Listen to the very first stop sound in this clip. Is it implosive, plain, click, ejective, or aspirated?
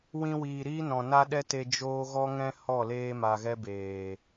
implosive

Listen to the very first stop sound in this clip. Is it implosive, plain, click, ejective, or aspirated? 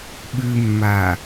implosive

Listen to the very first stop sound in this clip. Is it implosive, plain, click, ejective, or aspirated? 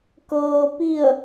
plain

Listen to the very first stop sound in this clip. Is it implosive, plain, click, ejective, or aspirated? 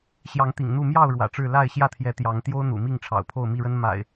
plain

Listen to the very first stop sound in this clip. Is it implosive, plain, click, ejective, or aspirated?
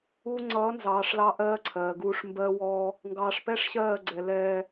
click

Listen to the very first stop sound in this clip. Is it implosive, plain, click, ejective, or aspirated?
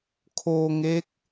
aspirated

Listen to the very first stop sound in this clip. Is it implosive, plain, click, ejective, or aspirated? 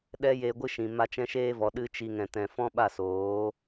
implosive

